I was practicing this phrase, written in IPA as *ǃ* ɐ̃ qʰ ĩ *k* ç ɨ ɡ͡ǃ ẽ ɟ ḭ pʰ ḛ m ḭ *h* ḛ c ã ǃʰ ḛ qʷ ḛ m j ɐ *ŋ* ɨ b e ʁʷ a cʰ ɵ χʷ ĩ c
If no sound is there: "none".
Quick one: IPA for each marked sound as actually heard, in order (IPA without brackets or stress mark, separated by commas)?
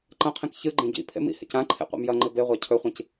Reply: ǃ, k, h, ŋ͡ǃ